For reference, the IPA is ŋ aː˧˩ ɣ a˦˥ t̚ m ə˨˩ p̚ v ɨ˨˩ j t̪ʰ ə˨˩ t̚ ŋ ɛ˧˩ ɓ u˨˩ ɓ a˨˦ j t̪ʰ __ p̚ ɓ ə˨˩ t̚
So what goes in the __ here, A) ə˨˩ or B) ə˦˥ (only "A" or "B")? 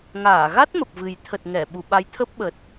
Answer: B